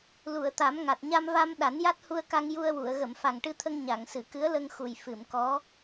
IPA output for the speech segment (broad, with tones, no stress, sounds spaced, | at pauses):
l u˨˩˨ ə̯ t̪ a˨˩˦ m ŋ a˨˩ t̚ ɲ a˧ m v a˧ m ɗ a˨˩˦ n j a˦˥ t̚ h u˧ ə̯ k a˧ ŋ j u˧ ə̯ w u˨˩˨ ə̯ ɣ ə˨˩˨ m f a˨˩ ŋ ʈ ɨ˧ t̪ʰ ə˧ ŋ ɲ a˨˩˨ ŋ s ɨ˨˩˨ k ɨ˧˥ ə̯ l ə˧ ŋ x u˨˩ j f ɨ˨˩˨ m k ɔ˧˥